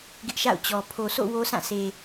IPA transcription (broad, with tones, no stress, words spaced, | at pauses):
ɡɪ˦ʔʃa̰˦˨ʊ̯t͡ɕɔ˨ pʰo˨so̰˦˨ wo˦sã˦˨sʰe˨